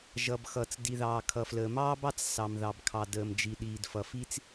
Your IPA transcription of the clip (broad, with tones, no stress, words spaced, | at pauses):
ʒʌ˩bxʌ˩t͡s di˩ðɑː˩kʰʌ˩fləː˩ mɑː˥bɑ˥t͡s sɑ˩mðɑ˩bkʰɑ˩ dəː˩md͡ʒi˩ ɗiː˩dfʌ˩fi˥t͡s